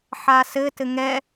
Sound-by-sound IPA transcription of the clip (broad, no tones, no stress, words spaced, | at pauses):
ħasɘ tɘŋɛ